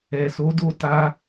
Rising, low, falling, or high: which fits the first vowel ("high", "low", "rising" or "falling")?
low